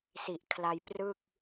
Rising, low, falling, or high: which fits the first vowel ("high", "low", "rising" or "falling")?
low